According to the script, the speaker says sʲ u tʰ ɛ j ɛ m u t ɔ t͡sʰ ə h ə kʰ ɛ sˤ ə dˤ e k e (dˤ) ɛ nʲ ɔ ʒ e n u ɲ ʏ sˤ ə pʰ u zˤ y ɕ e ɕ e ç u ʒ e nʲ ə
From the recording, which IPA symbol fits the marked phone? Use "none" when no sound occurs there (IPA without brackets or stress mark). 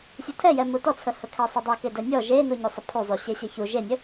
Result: d